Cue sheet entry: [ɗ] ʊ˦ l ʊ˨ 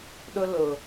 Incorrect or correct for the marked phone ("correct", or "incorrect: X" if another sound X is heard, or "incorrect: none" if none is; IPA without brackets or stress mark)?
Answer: correct